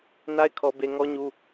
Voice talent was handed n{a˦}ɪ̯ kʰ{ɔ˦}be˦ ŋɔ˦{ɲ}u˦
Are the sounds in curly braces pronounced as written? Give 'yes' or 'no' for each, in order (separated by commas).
yes, yes, yes